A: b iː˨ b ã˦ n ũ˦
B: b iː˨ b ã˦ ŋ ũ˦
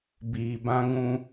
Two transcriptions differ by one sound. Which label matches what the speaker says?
B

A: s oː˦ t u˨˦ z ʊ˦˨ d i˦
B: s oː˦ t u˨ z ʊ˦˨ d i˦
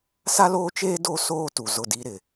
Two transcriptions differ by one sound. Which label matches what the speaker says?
B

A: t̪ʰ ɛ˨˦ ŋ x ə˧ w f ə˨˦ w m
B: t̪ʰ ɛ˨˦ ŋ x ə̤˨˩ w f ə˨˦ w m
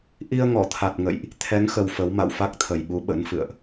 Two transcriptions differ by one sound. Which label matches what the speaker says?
A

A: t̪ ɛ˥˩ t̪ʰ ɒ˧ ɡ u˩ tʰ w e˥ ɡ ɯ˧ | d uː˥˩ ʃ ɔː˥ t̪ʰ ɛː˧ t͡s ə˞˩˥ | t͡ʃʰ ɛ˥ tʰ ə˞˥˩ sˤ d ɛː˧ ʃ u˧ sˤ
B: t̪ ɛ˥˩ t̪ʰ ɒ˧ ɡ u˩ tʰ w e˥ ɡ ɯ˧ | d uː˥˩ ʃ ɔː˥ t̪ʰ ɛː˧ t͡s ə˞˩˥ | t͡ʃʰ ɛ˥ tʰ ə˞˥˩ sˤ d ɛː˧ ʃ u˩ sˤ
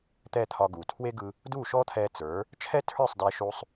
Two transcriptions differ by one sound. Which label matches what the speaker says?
A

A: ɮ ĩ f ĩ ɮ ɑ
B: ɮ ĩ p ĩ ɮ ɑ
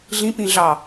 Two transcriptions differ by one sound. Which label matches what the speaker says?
B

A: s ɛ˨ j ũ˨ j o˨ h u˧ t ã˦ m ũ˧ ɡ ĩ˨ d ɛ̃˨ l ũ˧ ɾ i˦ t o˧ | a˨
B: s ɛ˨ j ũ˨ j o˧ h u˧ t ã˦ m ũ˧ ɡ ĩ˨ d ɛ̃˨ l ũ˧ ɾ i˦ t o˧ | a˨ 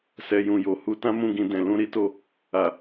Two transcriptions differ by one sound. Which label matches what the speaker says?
A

